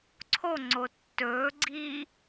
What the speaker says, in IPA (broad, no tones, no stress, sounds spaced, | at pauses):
ǀʰ o ŋ͡ǀ o tː ɵː ɡ͡ǀ iː